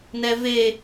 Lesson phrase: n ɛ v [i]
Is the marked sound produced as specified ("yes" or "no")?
no